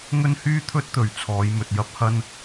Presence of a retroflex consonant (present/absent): absent